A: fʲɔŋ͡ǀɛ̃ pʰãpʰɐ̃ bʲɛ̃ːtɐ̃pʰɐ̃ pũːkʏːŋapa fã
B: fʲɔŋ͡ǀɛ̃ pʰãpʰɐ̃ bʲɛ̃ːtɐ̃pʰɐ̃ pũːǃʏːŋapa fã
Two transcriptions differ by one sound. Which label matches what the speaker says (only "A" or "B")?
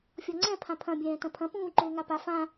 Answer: B